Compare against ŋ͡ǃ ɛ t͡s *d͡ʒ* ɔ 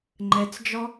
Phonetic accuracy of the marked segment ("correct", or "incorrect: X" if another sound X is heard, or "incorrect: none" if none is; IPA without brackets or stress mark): correct